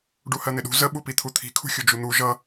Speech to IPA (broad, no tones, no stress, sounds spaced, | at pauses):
ɖ u h ɜ n̪ ɪ ɗ ṳ z ə ɓ u p i t̪ʰ u t̪ʰ i̤ kʰ ṳ xʲ u d͡ʒ u n̪ u ʒ ʌ